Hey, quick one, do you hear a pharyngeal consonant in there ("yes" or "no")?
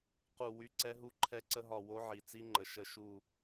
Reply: yes